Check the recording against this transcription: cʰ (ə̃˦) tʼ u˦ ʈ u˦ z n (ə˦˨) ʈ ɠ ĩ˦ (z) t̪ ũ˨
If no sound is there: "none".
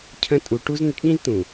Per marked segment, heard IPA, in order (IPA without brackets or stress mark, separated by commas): ə̃˦, ə˦, z